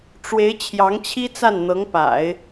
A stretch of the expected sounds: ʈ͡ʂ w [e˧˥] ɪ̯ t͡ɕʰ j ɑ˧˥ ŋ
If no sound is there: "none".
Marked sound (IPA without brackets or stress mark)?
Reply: e˧˥